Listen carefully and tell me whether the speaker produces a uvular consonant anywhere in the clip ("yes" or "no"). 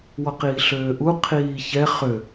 yes